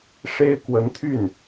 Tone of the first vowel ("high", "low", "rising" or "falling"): high